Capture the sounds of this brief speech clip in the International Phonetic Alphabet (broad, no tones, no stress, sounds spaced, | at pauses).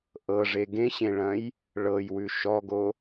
ʔ ɤ ʐ e ɡ ẽ ɕ ẽ ɭ ɐ̃ j | ɭ ɤ j w ʉ ʃ ɔ ɡ o